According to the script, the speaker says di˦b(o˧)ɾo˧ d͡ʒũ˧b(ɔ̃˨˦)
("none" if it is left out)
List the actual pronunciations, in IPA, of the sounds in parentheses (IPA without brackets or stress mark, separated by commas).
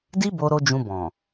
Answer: o˧, ɔ̃˨